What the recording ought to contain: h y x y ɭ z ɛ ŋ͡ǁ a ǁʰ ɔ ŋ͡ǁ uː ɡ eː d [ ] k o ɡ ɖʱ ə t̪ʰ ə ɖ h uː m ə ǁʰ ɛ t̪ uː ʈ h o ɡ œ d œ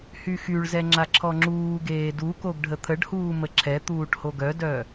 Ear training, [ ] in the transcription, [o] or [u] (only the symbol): u